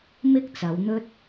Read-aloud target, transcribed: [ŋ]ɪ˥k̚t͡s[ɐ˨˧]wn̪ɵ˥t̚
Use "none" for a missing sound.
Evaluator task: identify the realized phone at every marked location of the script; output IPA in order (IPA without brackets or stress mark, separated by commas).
m, ɐ˨˧